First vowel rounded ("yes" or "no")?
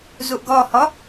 yes